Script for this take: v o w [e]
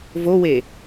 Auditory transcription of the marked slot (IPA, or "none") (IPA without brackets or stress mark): e